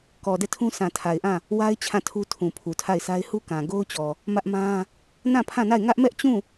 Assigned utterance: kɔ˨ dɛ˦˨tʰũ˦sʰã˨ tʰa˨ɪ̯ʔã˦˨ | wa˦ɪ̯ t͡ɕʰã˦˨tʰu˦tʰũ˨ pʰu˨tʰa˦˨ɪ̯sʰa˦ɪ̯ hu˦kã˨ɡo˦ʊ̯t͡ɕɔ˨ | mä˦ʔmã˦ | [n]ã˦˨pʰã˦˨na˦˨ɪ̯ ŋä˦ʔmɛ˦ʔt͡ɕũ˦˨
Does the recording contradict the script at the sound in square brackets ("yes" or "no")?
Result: no